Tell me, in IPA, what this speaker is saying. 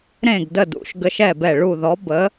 ɾ ẽ˦˨ ɡ d ə˦˨ d ṵ˧˥ ʃ ɡ ə˧˥ ʃ ɛ˦˨ b ɛ˦˨ ɭ u˦˨ ð ɔ˧˥ b ə˧˥

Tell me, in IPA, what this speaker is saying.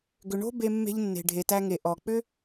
ɡ ʏ˨ ɳ o̤˦ b e˧ mː e̤˧ ʎ nː e̤˨ ɖʱ e˨ t æ˧ ŋ e˨ ʔ ɔ˨ k͡p ʏ˦

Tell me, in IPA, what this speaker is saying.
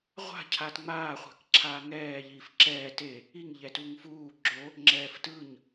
ʁʷ a̤ cʰ a t ŋ͡m aː χʷ a̤ k ǁʰ aː ŋ ɛː ʎ iː f ǁ ɛː t e | i ŋ ʎ ɛ t u ŋ f uː ɡ͡ǁ o | ŋ͡ǁ ɛː f t ɯ ɲ

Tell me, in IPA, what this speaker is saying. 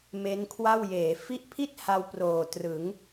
m e˦˥ n kʰ w a˥˩ w j eː˩˦ f i˦˥ ʔ pʰ i˥˩ t̚ h a˧ w p r oː˨˩ t r ɯ˩˦ ŋ

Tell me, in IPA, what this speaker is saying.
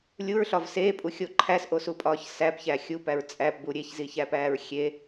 lʲ u ɹ ɬ ɒ v s eː pʼ u xʲ o ǃʰ æ s ʔ o s u pʼ ɒː ç s æ p ç æ xʲ u p æ ɹ t͡sʼ æ p b u ɾʲ e ç z i ç æ p æː ɹ xʲ e

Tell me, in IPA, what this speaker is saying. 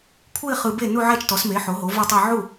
kʷʰ ɯ˥˧ ɪ̯ χ ɯ˨ b e˥˩ n u˥˧ ʕ ɛ˥˧ t͡ʃ t ɔ˩˥ s m e˩˥ ħ o˩˥ ɦ o˩˥ v o˥˧ tˤ ɤ˥˧ ʕ u˥˩

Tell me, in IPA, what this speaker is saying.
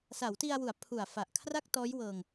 s a˩˦ w t i˧ a̯ w u˩˦ a̯ pʰ u˨˩ a̯ f a˨˩ ʔ kʰ r a˥˩ k̚ t ɔː˦˥ j w ɤː˧ ŋ

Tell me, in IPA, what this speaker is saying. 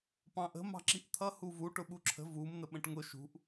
p ɑ̃ ʔ ə̤ m ɑ̤ ǁ i ʔ t̪ʰ ʌ h u v u ʈ ʊ ɓ u ǁʰ ə̤ v u m n̪ ə ɓ ə̃ ʈ ŋ ʊ ʃ ṳ ʔ

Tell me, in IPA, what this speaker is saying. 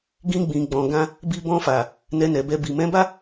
ɡ ĩ˧ ɡ͡b ĩ˨ ɡ͡b ɔ̃˨ ɡ ã˧ | b i˧ b ɔ̃˧ f a˨ | n ɛ˧ n ɛ˨ b ɛ˧ b i˨ m ɛ̃˨˦ b a˦

